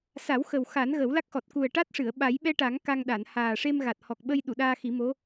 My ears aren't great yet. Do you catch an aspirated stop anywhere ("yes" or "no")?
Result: no